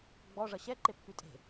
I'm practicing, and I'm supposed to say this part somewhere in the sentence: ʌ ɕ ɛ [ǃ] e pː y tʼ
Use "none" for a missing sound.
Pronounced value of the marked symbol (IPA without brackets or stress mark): ǃ